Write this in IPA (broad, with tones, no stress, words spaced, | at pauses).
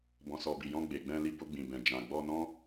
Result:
bɔ̃˨sɔ˨bi˨jɔ̃˧ ɡ͡be˨ɡ͡bɛ̃˧ li˧bo˧ɡ͡bĩ˨bɛ̃˨ d͡ʒã˨ɡ͡bɔ˧nɔ̃˦